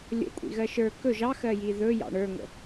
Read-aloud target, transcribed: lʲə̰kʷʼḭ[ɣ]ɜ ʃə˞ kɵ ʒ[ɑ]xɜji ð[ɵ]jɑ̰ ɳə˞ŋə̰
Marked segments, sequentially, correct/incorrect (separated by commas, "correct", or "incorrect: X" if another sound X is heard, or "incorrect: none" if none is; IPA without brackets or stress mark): correct, correct, correct